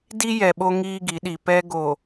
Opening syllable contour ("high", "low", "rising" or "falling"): high